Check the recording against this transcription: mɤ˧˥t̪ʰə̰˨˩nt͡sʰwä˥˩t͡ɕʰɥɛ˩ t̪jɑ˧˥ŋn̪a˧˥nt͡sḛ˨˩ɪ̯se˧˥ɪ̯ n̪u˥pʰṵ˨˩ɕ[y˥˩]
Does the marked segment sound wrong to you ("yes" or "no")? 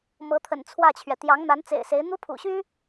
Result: yes